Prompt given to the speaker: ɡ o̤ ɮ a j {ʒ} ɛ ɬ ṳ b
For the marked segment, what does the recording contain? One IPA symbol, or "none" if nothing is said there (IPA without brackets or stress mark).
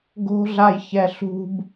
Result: ç